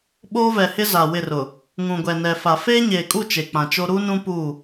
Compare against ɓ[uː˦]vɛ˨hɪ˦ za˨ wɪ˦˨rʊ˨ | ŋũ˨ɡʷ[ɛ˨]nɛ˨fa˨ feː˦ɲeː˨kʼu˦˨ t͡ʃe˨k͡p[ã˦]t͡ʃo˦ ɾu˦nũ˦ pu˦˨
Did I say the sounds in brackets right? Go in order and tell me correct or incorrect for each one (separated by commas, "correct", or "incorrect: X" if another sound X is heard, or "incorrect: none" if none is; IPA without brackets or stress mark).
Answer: incorrect: oː˦, correct, incorrect: ã˨